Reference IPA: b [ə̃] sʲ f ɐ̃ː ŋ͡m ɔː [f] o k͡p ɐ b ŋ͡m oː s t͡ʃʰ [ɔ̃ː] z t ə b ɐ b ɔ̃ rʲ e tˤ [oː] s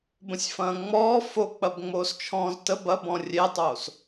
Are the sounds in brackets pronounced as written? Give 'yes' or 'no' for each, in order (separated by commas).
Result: yes, yes, yes, yes